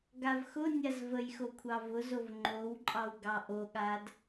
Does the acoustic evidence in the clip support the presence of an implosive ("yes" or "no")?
yes